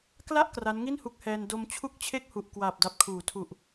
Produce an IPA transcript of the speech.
k l a˥˩ ʔ k r a˦˥ n ŋ i˥˩ n h u˦˥ k̚ h ɛː˧ n d o˧ m t͡ɕʰ u˥˩ k̚ t͡ɕʰ e˥˩ k̚ h u˨˩ ʔ k w aː˨˩ p̚ d a˨˩ p̚ kʰ uː˩˦ tʰ u˨˩ ʔ

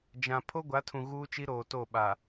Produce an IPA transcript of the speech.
d͡ʒ ã˨ pʰ o˦ ɡʷ a˨˦ tʰ ũ˨ ɣ uː˦ t͡ʃ i˦ ɾ oː˨ t o˦˨ ɓ a˨

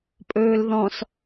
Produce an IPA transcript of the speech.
pʼ ɵː l ð ɔ̃ s

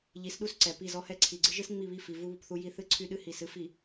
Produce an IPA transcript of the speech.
ʎ i˨˦ s ɗ u˦ s ǀ ɛ˨ p i˦˨ z ɔ˦ h ɛ˦ ǀʰ i˨ ɡ͡ǀ ɨ˦ ʒ ɨ˦ s ŋ͡m i˦˨ β i˦˨ f i˨ v u˦ β u˨ p θ u˦ j i˦ θ ɨ˦ ǀʰ y˦ ɗ ɨ˦ h i˨ s ɨ˦ f i˨

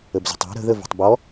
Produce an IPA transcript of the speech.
ə b z ə̤ tˤ æ̤ ɾ ə̤ ð ə v ə̤ tˤ b ɔ

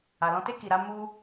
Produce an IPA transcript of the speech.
a˨ l ɔ̃˧ t e˦ k i˧ ɾ a˦ m u˦

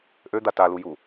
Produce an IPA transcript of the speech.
ʔ ø d̪ a t a l u j u

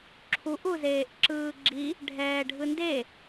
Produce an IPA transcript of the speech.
ǁʰ u ʔ u z eː ʔ ǁ ɯː ɡ͡ǁ i | ɖʱ ɛː ɖʱ ɯ n d e

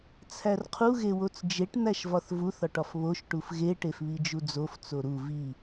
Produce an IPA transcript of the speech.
t͡sʰ æ r qʰ u ɣ e w o t͡s d͡ʒ e ʈ n̪ æ ʃ v ɒ θ v u θ ɒ ʈ ɒ f β o ʃ ʈ u f ɣ e ʈ e f β i d͡ʒ u d͡z o f t͡s o ɾ u v i

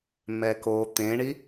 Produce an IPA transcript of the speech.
m ɛ k o t̪ ẽ ɳ i

